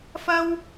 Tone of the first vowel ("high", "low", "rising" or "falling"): high